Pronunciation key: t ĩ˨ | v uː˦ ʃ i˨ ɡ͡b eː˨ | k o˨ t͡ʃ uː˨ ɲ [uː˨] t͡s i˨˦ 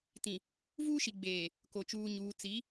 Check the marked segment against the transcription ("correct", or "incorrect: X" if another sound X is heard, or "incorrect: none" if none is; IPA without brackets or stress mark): correct